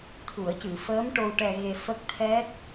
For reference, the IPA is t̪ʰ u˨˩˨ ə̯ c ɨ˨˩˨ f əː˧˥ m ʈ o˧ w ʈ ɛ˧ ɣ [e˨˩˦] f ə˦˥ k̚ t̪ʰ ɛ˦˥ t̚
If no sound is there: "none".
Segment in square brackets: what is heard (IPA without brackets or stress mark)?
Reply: e˧